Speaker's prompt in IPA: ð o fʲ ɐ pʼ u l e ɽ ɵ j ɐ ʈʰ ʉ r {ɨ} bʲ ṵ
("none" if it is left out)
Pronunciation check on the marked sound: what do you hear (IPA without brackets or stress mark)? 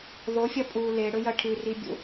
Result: i